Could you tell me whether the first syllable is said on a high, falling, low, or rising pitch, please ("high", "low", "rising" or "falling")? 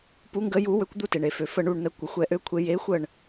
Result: rising